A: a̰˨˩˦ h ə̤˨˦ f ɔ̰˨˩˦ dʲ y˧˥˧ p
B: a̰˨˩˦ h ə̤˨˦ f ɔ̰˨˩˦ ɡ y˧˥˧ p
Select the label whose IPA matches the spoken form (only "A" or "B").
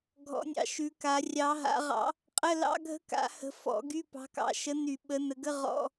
B